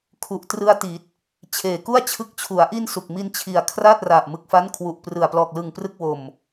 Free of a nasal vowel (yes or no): yes